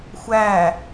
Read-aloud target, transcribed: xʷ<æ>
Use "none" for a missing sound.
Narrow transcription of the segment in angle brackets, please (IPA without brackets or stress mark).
æ